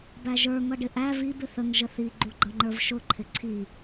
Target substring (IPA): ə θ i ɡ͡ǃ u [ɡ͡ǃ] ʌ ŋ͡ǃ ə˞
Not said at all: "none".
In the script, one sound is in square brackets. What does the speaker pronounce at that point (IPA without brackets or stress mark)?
ɡ͡ǃ